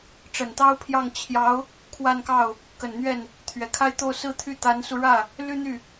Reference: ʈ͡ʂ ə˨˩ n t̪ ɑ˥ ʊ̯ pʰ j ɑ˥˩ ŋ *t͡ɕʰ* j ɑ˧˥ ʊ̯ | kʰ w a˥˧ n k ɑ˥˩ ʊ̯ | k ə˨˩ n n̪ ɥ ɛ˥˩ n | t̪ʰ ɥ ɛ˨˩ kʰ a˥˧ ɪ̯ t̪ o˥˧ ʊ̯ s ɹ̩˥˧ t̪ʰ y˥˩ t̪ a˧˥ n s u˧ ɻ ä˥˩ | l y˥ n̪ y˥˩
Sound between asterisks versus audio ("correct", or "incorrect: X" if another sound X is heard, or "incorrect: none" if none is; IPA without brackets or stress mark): correct